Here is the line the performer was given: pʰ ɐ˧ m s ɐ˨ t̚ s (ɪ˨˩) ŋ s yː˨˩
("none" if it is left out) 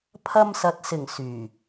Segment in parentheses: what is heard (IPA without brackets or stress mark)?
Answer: ɪ˨˩